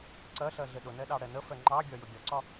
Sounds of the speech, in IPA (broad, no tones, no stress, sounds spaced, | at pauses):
ǀ ɜ ɬ ɜ ɮ ɪ ɗ ʊ n ɛ ɗ ɑ ɽ ɛ n ə f ɛ ŋ͡ǃ ɑ ɡʲ ɒ j ʊ ɡʲ ɒ ǀ ɒ